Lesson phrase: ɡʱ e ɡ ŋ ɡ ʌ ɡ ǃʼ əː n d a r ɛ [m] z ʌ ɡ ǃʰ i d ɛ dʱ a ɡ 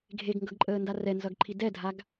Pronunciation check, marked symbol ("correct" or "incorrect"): incorrect